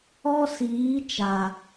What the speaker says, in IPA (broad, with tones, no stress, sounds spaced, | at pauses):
ɔ˦ s iː˨˦ t͡ʃ a˨